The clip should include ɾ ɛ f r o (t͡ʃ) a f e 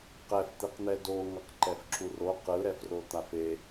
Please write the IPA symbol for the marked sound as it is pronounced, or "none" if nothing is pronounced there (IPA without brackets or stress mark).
t̪